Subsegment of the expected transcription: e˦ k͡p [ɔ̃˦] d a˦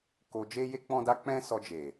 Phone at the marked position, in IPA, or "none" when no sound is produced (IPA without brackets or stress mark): ɔ̃˦